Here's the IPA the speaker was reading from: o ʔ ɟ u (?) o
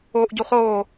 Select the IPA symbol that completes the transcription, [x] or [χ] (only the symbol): χ